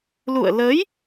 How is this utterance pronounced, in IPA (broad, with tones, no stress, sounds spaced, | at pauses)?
l ṵ˧˨ ə̯ l ə˨˦ j